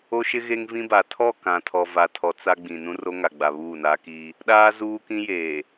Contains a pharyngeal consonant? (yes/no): no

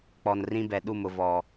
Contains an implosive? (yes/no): yes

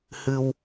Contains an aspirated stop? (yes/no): no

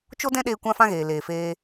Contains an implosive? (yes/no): yes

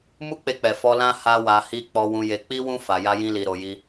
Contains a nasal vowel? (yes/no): yes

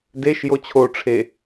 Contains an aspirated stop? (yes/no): yes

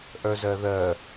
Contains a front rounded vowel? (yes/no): yes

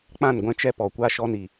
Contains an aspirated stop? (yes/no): no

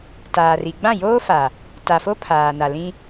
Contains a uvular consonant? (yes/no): no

